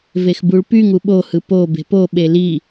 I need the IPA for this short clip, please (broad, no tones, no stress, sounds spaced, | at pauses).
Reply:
v e x b u ɭ p y ŋ u ɓ o h ɯ p o b e̤ p o ɓ e l i